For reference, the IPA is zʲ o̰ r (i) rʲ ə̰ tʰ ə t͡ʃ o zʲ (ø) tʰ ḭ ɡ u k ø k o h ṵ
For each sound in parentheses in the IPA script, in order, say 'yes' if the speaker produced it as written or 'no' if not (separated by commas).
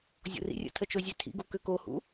no, yes